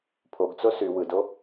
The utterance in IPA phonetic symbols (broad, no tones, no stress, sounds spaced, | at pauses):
pʰ o ɡ t͡s o s y w ɯ d o